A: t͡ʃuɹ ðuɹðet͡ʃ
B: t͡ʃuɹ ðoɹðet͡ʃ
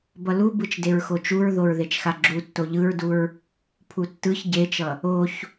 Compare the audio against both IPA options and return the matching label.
B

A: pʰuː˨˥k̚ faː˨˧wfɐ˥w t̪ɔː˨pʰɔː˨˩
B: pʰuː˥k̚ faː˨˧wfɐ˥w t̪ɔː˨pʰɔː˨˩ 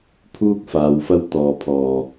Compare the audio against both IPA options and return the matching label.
B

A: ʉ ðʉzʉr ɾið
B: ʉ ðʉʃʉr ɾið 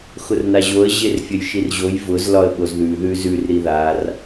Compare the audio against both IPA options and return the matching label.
A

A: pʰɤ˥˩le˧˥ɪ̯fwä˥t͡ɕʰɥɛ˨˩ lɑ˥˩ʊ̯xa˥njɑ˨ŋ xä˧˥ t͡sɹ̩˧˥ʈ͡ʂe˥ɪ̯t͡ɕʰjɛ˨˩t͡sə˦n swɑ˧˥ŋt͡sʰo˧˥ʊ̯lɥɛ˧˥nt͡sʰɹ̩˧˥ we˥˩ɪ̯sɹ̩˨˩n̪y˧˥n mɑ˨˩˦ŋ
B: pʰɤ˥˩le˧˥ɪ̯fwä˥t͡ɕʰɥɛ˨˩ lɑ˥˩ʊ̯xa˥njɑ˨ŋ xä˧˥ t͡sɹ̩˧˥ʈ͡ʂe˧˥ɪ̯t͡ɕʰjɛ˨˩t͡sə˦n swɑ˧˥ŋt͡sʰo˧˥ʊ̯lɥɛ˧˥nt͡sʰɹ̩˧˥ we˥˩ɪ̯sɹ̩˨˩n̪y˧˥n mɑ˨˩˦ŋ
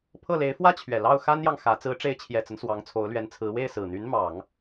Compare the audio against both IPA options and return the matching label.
B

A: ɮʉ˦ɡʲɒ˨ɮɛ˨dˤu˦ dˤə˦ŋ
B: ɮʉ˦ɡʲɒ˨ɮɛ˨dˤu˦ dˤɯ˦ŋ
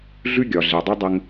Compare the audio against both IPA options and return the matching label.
A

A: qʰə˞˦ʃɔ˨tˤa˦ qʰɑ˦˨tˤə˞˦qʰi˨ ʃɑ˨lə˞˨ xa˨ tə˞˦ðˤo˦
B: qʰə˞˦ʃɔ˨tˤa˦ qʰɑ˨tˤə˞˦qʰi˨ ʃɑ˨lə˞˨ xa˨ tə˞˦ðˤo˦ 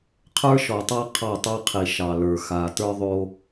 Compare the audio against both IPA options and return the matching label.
A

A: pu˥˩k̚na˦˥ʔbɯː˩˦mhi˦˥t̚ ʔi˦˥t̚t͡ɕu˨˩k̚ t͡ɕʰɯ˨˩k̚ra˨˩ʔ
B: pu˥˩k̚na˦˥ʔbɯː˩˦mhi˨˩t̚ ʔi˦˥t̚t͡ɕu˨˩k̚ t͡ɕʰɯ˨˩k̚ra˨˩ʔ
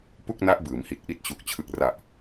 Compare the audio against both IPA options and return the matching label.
B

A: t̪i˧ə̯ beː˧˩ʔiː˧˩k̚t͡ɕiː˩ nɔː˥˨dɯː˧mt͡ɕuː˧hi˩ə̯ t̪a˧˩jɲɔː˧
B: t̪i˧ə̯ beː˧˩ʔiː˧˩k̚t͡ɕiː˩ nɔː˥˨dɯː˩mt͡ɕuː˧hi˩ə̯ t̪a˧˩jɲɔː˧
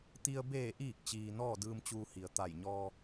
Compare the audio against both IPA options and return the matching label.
A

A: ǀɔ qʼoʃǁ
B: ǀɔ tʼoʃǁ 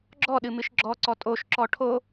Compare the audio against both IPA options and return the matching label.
B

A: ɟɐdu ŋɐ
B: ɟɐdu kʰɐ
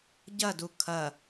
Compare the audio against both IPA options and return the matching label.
B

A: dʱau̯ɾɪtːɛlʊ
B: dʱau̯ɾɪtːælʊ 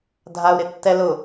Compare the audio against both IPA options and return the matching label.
A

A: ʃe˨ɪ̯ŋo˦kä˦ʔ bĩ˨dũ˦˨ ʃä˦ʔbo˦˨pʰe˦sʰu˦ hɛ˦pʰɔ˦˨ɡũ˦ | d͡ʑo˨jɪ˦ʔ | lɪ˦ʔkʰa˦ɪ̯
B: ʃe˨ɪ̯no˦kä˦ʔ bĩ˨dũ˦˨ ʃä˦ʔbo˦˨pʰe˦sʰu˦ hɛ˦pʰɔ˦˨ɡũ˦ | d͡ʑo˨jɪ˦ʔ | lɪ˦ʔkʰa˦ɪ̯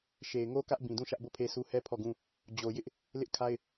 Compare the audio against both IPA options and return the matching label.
A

